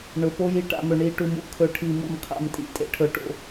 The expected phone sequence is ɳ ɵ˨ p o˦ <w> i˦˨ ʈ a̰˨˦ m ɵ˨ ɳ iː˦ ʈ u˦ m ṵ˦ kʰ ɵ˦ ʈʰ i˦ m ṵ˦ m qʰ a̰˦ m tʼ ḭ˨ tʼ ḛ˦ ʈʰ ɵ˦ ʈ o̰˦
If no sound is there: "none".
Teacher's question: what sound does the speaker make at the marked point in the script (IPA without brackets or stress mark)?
j